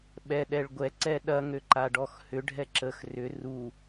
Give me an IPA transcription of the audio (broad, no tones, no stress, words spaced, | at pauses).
ɓɛɗɛɭ ɡʷɛǀɛ ɗɐŋøǃaɖɔx hʏɖʱɛ ǁəx rʏ ru